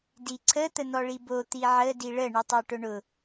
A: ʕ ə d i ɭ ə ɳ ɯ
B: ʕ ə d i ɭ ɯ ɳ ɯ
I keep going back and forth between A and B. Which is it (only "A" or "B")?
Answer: A